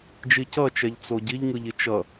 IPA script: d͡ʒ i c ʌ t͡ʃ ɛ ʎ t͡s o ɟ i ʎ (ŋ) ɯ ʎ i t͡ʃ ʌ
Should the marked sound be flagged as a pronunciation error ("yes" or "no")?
no